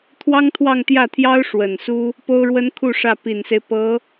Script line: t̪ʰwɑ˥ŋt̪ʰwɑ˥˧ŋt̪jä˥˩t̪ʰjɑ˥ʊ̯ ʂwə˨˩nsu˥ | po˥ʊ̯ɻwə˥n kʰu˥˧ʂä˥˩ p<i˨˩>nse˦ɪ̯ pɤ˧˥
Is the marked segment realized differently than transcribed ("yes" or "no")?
no